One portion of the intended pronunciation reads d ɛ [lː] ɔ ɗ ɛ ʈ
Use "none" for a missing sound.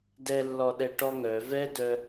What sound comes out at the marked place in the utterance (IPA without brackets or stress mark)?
lː